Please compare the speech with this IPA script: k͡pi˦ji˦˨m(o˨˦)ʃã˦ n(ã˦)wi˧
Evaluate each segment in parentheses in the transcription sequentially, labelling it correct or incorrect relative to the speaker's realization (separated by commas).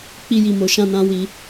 incorrect, correct